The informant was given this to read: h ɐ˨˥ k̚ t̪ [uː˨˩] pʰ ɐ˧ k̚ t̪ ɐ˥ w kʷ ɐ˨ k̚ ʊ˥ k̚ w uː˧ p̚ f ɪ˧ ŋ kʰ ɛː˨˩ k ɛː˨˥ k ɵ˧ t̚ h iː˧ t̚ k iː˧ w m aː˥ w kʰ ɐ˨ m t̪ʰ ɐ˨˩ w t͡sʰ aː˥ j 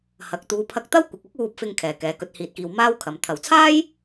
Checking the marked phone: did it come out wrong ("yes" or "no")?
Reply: yes